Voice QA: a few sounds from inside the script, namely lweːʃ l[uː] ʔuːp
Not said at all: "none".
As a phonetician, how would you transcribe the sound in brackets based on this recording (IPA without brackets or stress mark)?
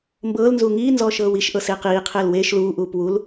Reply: uː